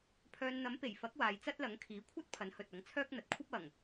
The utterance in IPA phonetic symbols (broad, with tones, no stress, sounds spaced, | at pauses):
pʰ œː˧ n n̪ ɐ˨˥ m p e˨˩ j f ɐ˨˥ k̚ w aː˨ j t͡s ɐ˥ t̚ l ɐ˨˥ ŋ kʰ iː˨˥ kʷʰ ɐ˥ t̚ pʰ ɐ˨˥ n h ɵ˨ t̚ ɐ˨˥ ŋ t͡sʰ œː˥ k̚ n̪ ɐ˨ t̚ kʷʰ ɐ˥ p̚ ɐ˨˩ ŋ